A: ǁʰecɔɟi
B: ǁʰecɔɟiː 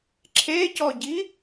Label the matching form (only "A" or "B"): A